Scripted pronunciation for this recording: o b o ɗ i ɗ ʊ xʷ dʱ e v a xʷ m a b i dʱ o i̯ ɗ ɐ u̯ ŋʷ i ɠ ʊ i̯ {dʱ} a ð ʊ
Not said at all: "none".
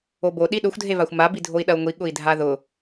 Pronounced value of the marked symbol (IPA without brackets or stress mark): dʱ